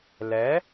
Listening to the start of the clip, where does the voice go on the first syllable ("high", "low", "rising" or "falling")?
rising